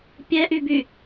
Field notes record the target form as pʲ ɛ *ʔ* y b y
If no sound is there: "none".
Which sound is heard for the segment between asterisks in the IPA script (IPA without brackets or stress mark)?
ʔ